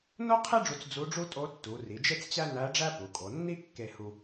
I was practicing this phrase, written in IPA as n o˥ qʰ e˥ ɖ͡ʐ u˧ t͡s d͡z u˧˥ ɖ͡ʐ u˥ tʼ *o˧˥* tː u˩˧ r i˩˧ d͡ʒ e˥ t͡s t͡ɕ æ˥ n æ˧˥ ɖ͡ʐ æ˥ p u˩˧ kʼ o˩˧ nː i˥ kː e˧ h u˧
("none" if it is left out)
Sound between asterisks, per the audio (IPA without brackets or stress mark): o˧˥